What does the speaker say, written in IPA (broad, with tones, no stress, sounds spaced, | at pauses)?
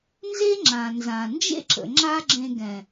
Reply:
n z e˦ ŋ͡ǁ ã˨ n z ã˨ n d͡ʒ ḛ˦ ǁ ə̰˨ ŋ͡ǁ a˦ ɡ͡ǁ ẽ˧ ɡ ɛ̃˨